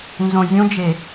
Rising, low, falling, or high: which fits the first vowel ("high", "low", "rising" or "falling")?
low